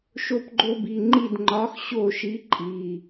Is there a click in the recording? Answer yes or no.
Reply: yes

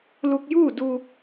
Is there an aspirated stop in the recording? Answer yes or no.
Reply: no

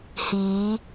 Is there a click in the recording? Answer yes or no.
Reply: no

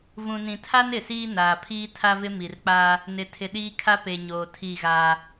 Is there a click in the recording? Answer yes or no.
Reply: no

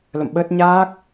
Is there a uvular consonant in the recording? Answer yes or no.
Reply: no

